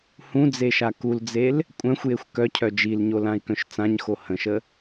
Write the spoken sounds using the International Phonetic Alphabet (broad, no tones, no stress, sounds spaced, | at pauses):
h ũ d͡z e ʃ a k u l d͡z e l | kʷʼ œ̃ xʷ j e xʷ k œ cʰ œ d͡ʒ i l ɲ o l ã i̯ k œ̃ ʃ t͡s ã ɲ x o h ə̃ ʃ ə